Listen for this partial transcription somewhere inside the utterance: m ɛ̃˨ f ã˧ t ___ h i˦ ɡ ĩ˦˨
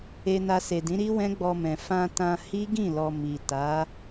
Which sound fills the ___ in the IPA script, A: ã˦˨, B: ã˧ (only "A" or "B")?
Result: B